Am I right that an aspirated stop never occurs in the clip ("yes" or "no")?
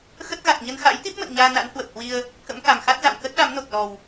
yes